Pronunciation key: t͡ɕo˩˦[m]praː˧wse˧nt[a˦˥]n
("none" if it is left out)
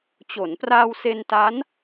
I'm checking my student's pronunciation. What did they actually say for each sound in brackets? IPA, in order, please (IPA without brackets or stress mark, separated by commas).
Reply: n, a˦˥